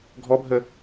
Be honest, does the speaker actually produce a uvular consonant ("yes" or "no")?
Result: no